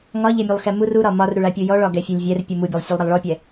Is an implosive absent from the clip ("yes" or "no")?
yes